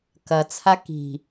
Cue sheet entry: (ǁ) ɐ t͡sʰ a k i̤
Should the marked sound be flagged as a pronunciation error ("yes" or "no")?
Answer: yes